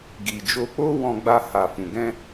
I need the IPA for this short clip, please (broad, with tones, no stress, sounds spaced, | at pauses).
ɡ i˨ d͡ʒ o˧ k͡p o˦ w ɔ̃˧ ɡ͡b a˧ h a˨ f ũ˨ ɡ ɛ̃˧